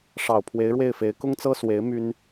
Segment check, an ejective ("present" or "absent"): absent